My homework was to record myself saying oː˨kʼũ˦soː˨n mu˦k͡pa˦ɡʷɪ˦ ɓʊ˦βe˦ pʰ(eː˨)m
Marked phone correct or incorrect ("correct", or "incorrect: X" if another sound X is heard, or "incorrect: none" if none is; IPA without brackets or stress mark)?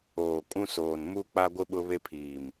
incorrect: iː˨